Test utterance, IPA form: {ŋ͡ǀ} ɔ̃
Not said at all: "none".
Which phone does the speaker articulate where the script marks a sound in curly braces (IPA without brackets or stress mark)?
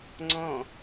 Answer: ŋ͡ǀ